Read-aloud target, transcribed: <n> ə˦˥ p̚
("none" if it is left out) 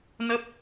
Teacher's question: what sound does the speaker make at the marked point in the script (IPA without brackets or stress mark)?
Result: n